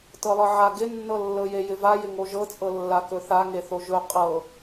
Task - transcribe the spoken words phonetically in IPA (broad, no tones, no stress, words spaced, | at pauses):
tɤlˠɤʕa ɡɪnːɤlːɤ jejɪva jɪŋoʒɤt͡sʼɤ lːakɵθaŋe θoʒɵ qʼɤ